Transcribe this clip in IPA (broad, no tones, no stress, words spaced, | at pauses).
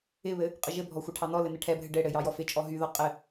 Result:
ɪβɘ | qʼəʒɘbʱɔ xʷɘʈʰɑnɔlɘ nɘʈʰɛbʱɘ ɖɘɽɘ jɑjɔfɪt͡ʃʼɔ ɦyðɔ qʼɘ